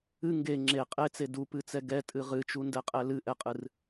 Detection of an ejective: present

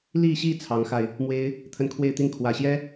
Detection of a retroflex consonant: absent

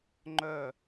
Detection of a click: present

